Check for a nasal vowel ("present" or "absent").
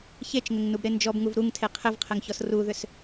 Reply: absent